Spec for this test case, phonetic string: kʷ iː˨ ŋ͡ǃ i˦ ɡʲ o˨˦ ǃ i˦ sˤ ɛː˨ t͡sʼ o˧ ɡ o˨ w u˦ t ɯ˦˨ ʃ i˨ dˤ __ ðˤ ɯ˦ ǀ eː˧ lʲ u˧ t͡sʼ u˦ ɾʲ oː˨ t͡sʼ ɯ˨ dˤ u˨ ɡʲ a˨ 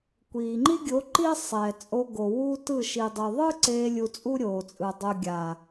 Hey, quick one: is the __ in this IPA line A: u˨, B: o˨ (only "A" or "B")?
A